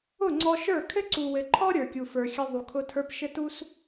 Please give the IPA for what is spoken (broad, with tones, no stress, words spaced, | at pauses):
ʊ˦˨ŋ͡ǀɔ˧ʃə˞˦˨ kʰɘ˦ǀu˨wɘ˨ǃʰɔ˦ ɾʲə˞˨kʲu˨fə˞˨xʲɘ˧ ðˤu˨kʰʊ˧tʰə˞˧p ʃɘ˦tu˦s